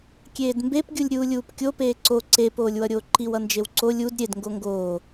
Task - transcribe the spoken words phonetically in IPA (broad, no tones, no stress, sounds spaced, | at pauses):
kʲ eː d m b e p ɡʲ u lʲ ɾʲ uː lʲ uː p kʲ o p eː ǀ o ǀ e p oː lʲ w ʌ ɾʲ oː ǃ i w ʌ n d͡ʒ e w ǀ o lʲ u d ɾʲ e d ŋ ɡ o ŋ ɡ oː